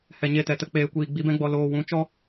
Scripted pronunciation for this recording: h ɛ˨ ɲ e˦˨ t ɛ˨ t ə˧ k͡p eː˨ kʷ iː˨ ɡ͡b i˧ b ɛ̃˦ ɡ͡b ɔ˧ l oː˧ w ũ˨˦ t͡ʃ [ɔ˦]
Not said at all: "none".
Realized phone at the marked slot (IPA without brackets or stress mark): ɔ˦